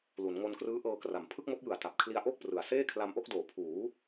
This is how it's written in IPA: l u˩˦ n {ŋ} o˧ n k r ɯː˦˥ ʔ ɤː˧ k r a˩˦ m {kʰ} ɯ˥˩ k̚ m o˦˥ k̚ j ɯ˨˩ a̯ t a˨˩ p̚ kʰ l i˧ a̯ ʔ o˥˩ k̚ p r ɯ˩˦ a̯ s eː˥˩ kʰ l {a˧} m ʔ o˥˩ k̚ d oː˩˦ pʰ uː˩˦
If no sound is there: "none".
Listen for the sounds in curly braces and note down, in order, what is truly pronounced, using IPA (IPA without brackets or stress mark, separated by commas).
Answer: ŋ, pʰ, a˧